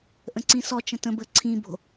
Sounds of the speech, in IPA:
ʔə̃ǀĩsɔt͡ʃə̃ tə̃bə ǀʰĩbo̤

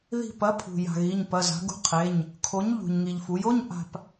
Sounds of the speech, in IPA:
ði̤˦˨pɐ˨˥pʰṳ˩ ja̤˩ɣi˩˧˩ɲpɐ˩˧˩ za̤˩˧ɡṳ˨˥ qʰe˩˧˩ɲ | kʰo˨˥ɲ ʎṳ˩ɲŋi˩ʎfu˩˧jo˧˥˧ɲ ʔa̤˦˨p

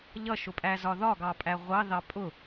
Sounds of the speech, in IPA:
ʎʌʃʊpʼæzɒ ðɒɡɑpʼæ ʁʷɑðɑ pʼʊ

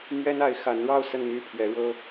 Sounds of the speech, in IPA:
mɥɛ˥na˧˥ɪ̯ xa˧˥nɻɑ˥˧ʊ̯ sə˥˧n my˥˩pʰɥɛ˧˥ɻɤ˥

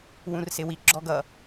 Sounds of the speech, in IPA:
wũrsɪwi ɡ͡ǁɔɡʌ

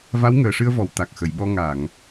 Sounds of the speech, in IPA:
va˧˥wŋəː˨˩ʂɨ˧ə̯vɔ˨˩˨w t̪a˨˩k̚xə˨˩˨jɓɔ˧ ŋa˨˩˨ŋ

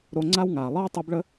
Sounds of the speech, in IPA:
ɾo˧ŋ͡ǀa˦wŋaː˨ lˠʌː˦tˤi˧bɭə˦

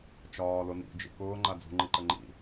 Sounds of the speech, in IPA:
t͡ʃɒːlʊnḭ d͡ʒḭkʊː ŋ͡ǃad͡zṳ ŋ͡ǃiǃəŋ͡ǃḭ

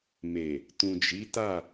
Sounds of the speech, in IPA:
me˨ | tũ˨d͡ʒi˨˦ta˦˨

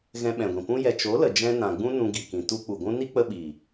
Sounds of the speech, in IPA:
ɣɛ̃˧ɓɛ̃˨ɡʷĩ˨pũ˦ jɛ˨t͡ʃo˨˦lə˨ d͡ʒɛ̃˧nã˨ɡ͡bũ˦ nũ˧ɡi˨kĩ˨ tu˧k͡pu˨ ɡʷũ˦ ni˦k͡pə˧ɓiː˨

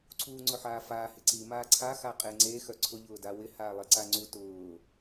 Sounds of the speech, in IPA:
ǀʰuːŋ͡ǀʊħaːfaː hɪǀi maːǀʰa xaqʼeŋ͡ǀe xœǀʰʊ ʎʊːdawɪ haːlˠeǀaŋ͡ǀu tʊː

